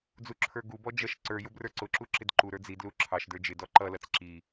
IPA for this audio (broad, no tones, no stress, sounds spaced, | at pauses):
d͡z u ǁʰ ə˞ ɡ u b ɔ d͡ʒ ʌ ʃ ǀ ə˞ j ʊ b r ə˞ ǀ ʊ ǁ u ǁ ɪ d ǃ u ɾ ə˞ d͡z i d l u ǁʰ ɑ ʃ d ə˞ d͡ʒ ɪ d ɔ ǃ ʌ l ʌ t͡s ǁ i